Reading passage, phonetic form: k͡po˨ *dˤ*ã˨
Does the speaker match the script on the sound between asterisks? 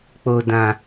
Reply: no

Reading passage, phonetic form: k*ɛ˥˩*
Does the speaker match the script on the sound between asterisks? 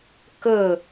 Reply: no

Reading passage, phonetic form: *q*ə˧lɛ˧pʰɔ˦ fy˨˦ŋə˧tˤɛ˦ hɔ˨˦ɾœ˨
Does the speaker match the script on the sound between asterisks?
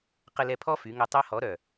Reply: yes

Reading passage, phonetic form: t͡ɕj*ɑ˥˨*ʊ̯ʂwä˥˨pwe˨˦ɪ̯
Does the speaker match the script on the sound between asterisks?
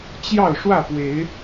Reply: yes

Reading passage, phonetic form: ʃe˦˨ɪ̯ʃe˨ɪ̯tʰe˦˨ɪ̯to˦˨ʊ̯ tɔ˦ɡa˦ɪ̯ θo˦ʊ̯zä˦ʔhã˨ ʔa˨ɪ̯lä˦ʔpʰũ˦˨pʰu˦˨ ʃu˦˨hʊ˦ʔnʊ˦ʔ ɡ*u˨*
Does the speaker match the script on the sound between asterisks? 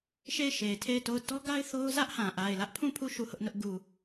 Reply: yes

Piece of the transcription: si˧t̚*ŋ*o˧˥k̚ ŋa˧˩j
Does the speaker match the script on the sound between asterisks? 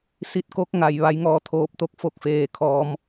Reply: no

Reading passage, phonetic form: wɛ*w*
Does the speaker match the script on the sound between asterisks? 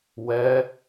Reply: no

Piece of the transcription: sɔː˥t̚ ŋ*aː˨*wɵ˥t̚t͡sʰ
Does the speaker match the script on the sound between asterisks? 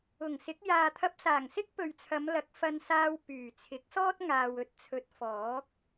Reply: yes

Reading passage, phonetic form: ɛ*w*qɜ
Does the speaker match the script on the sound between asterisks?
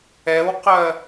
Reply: yes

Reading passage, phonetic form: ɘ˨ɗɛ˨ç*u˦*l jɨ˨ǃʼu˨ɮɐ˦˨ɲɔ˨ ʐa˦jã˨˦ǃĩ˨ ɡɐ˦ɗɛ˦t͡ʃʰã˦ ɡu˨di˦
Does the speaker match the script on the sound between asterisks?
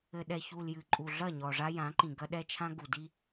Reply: no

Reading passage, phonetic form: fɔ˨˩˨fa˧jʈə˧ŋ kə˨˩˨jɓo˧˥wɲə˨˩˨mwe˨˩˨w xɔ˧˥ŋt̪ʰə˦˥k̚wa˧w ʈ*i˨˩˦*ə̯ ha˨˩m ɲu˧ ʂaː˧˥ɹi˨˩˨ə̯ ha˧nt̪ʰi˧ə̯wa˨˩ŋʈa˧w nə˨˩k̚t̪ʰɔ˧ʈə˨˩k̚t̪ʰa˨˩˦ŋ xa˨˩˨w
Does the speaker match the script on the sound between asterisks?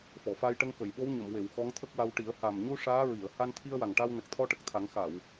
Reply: yes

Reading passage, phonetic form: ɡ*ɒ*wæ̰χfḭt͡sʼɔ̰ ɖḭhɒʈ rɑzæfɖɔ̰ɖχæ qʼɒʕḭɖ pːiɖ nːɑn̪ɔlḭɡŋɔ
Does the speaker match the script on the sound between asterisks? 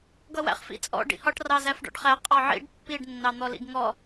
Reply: no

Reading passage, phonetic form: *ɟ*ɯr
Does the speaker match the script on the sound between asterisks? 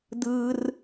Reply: no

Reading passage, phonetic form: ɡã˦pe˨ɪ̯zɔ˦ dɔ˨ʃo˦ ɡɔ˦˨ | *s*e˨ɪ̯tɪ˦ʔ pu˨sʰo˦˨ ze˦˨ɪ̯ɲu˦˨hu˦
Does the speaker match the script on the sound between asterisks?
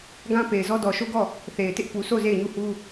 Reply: no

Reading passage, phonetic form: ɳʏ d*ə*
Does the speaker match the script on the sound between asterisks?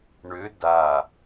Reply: no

